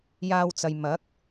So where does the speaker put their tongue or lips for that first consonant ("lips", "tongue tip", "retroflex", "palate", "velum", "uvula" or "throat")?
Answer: palate